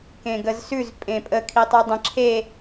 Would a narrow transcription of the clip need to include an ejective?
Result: yes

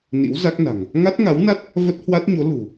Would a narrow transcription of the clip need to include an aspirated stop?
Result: no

